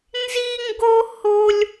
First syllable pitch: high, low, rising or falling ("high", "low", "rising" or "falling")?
high